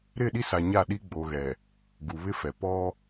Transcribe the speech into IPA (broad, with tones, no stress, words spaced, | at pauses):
ɾɪ˦˨ɗi˦sa˨ ɲa˦˨ɗi˦ ɡ͡bo˨ɣɛ˨ | ɡu˨βɪ˦fɛ˨ pɔ˦